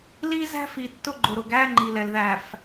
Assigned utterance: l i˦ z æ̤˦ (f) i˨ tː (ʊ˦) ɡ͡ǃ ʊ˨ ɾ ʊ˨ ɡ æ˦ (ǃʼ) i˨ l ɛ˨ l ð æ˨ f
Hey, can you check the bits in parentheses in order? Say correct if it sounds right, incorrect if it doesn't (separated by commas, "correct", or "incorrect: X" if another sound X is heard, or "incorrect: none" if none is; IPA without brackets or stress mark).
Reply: correct, correct, incorrect: ŋ͡ǃ